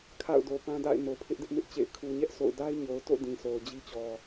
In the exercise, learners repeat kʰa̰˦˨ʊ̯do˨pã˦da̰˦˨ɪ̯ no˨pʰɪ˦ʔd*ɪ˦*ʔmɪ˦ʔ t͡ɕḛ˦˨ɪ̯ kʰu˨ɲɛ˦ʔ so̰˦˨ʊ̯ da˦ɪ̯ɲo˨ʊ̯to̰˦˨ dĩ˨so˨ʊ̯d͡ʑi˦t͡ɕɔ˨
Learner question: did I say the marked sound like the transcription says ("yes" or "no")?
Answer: yes